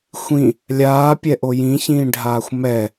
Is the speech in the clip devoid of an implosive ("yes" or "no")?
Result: yes